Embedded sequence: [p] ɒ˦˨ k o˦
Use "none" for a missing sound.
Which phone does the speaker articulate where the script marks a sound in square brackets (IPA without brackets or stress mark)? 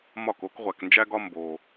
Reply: m